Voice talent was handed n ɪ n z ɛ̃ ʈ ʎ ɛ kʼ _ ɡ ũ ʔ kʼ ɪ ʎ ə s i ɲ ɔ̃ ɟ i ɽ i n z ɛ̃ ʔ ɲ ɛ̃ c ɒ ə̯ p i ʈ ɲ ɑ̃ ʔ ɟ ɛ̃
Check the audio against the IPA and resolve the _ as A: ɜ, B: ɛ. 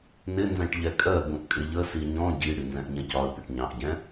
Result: A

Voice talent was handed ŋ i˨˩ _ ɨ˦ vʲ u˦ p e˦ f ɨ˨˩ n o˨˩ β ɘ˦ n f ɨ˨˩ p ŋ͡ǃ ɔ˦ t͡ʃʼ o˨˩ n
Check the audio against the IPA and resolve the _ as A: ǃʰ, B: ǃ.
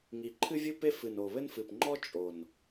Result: A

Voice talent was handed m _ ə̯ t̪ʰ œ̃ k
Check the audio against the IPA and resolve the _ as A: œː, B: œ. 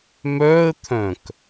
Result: A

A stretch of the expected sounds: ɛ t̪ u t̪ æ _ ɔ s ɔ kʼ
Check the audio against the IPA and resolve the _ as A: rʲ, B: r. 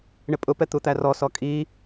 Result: B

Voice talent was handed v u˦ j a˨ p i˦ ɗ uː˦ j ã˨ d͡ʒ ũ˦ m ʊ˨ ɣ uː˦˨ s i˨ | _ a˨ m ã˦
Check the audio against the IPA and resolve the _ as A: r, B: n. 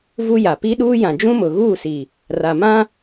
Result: A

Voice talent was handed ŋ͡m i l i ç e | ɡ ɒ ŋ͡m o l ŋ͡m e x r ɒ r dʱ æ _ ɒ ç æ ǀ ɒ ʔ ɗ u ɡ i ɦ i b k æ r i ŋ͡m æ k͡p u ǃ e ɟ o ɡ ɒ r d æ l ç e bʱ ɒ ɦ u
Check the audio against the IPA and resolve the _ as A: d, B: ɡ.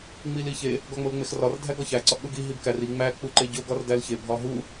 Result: B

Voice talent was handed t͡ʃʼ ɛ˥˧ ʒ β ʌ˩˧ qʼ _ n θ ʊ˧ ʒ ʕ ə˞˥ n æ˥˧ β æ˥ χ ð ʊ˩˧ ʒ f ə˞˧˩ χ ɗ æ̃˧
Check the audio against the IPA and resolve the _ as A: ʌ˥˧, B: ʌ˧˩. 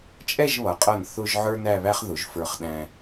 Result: B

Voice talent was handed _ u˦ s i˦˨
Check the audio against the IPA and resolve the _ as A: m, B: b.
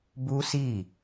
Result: B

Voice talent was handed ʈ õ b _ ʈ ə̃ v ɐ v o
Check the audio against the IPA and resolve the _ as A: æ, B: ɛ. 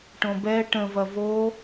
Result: B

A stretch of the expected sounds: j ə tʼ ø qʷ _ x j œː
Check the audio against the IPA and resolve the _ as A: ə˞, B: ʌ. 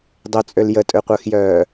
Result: A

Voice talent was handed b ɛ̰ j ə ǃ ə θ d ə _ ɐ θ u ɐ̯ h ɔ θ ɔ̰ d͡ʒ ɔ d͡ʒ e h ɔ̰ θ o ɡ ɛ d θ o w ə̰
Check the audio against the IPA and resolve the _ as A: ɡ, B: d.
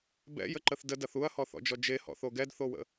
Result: B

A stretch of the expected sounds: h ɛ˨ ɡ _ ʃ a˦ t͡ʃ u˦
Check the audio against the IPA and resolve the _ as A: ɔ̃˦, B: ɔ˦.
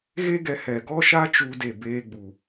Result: B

